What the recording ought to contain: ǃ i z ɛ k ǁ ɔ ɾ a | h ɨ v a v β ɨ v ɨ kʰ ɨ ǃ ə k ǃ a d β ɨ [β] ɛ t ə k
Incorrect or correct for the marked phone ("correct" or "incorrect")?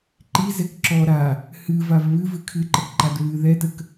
incorrect